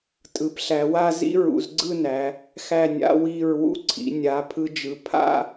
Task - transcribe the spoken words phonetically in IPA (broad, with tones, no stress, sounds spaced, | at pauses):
tʼ ɯ˩˧ p ɬ æ˩˧ w a˥˧ z ḭ˥ ɹ ṵ˩˧ z ɡ͡ǀ ɯ˥˧ n æ˩˧ | x æ˧˩ nʲ a̰˧ w i˧˩ ɹ w ṵ˥ ǀʰ ḭ˩˧ nʲ a˩˧ pʰ ɯ˧ d͡ʒ ɯ˩˧ pʰ a̰˥˧